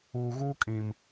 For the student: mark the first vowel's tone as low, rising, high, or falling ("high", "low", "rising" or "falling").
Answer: low